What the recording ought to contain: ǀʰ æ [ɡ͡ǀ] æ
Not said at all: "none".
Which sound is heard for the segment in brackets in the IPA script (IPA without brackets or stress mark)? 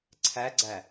ɡ͡ǀ